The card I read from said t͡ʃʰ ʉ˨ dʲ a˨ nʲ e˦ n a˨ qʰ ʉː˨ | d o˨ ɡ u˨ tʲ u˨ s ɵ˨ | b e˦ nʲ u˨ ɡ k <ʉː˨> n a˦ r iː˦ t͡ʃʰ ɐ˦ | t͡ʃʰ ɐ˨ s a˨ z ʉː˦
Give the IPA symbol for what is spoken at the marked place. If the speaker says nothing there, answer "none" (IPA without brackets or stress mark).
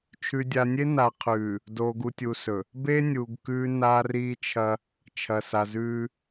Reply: ʉː˦